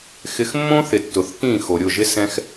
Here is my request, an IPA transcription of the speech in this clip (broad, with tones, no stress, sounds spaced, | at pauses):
x ɪ˧ x mː õ˦ θ ɪ˨ tː ʊ˨ θ k ĩ˦˨ x o˨ ɾʲ ʊ˦˨ ʒ ɪ˦ s ɛ̃˦ x